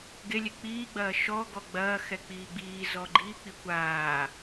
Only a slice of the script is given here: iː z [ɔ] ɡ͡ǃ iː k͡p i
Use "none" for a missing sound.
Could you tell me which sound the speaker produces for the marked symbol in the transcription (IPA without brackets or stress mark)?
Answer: ɔ